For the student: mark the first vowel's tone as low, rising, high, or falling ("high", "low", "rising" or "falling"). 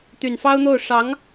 low